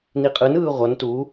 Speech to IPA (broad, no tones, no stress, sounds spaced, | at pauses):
n i qʼ ɯ n ɯː ʁʷ ʌ n t u